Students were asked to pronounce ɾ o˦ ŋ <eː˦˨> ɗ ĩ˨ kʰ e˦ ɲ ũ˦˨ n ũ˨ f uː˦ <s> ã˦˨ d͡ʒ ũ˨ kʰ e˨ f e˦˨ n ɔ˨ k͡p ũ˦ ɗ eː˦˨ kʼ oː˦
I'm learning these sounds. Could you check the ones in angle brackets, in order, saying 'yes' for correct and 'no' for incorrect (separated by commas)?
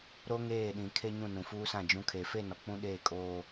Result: yes, yes